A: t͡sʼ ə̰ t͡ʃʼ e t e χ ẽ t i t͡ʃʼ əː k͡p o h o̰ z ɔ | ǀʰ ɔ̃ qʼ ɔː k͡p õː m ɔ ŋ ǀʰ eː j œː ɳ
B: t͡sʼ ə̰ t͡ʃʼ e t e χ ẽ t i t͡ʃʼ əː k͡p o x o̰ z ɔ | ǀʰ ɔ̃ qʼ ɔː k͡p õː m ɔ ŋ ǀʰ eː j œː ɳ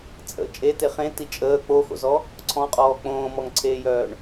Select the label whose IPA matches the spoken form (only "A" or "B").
B